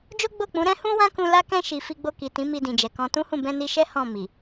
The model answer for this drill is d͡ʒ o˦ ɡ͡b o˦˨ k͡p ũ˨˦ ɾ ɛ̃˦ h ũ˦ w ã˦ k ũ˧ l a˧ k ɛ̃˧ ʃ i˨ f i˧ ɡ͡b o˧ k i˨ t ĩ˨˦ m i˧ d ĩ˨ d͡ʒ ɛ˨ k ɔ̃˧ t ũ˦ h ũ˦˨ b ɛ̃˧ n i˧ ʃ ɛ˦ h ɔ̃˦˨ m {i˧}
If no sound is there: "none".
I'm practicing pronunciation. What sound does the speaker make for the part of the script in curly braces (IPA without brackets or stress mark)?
i˨